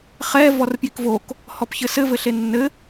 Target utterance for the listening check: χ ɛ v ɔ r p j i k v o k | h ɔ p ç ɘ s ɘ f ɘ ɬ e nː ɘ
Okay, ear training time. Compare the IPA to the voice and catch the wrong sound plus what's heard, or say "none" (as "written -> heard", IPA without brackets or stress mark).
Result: f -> v